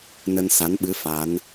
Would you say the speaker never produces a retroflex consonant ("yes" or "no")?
yes